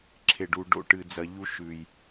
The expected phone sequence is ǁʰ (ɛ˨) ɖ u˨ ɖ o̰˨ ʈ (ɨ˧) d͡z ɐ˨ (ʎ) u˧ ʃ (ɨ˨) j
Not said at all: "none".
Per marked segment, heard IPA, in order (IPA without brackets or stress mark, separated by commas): e˨, ɨ˨, ʎ, ʉ˨